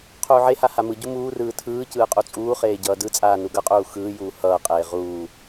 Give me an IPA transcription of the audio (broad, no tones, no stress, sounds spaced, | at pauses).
qʰ uː ʕ e h a h a m ɯ ɟ u m uː r ɯː tʰ ɯː c ɯː qʼ u t͡sʼ uː χ eː ɟ ʌː d ɯ t͡sʼ aː n u ɡ ʌ qʼ uː x ɯː j uː h ʌː qʼ eː ʁ uː